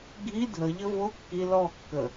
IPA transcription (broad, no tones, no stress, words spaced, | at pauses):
ɡʱi dʱəʎə vo kːi lɔkːə